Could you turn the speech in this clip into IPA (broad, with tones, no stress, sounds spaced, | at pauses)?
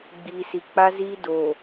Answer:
ɡ͡b iː˨ s i˨ k͡p a˦ z iː˦ d oː˨